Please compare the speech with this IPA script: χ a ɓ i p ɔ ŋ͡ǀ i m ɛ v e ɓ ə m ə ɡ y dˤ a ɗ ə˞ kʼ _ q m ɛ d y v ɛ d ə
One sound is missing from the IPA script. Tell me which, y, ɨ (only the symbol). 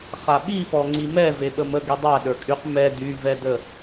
y